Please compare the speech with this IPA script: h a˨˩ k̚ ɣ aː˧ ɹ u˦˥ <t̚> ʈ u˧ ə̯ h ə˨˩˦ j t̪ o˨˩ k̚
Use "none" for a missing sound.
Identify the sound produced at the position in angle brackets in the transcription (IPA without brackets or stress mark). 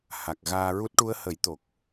t̚